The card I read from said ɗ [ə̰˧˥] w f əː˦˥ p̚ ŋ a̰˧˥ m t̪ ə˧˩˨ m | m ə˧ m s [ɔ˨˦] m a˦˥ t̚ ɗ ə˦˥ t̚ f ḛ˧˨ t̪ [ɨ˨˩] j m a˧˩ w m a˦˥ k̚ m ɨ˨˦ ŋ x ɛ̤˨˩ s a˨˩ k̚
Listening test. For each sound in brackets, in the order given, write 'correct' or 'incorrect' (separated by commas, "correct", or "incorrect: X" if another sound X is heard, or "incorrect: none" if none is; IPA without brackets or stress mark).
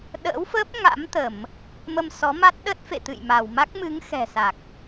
incorrect: ə̰ː˧˥, correct, incorrect: ɨ̰˧˨